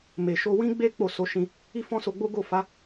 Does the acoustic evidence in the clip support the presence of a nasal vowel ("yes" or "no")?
yes